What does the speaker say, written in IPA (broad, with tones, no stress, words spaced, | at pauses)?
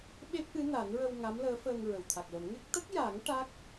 ɓe˦˥p̚ʔɨ˧˥na˨˩˦nɹə˧w ŋa˧˥mləː˧˥fəː˧ŋ ɹə˨˩wt̪ʰa˨˩k̚lə˨˩˦mŋe˦˥k̚ t̪ə˦˥k̚ ja˨˩˦ŋ ʈa˦˥k̚